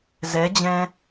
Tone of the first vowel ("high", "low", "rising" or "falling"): rising